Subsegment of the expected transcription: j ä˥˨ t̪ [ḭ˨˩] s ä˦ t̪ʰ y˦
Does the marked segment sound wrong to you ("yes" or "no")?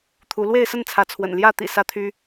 no